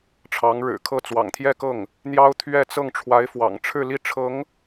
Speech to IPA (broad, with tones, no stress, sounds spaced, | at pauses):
ʈ͡ʂʰ ɑ˧˥ ŋ ɻ ɻ̩˨˩ kʰ ɤ˥˩ t͡s w ɑ̰˨˩ ŋ t̪ʰ j ɛ˥˧ k ɤ˥˩ ŋ | n̪ j ɑ˥ ʊ̯ t̪ʰ ɥ ɛ˥˧ t͡s ɤ˥˩ ŋ ʈ͡ʂʰ w a˧˥ ɪ̯ f w ɑ̰˨˩ ŋ ʈ͡ʂʰ ɻ̩˥˧ l i˥˩ ʈ͡ʂʰ ɤ˧˥ ŋ